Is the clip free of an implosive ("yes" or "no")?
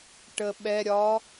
no